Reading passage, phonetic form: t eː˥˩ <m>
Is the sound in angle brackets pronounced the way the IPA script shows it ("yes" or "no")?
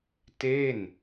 no